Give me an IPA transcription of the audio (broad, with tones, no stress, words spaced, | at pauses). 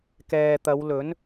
kɛː˨t̪ɐ˨˧wlɵ˨˥n